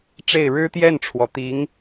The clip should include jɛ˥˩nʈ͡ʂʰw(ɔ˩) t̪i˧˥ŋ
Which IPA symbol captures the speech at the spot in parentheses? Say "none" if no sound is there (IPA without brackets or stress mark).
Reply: ɔ˩